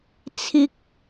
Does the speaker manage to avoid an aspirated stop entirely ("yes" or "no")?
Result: no